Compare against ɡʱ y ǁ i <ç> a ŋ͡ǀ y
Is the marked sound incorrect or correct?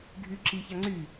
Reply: correct